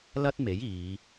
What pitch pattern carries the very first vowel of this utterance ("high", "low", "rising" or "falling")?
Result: high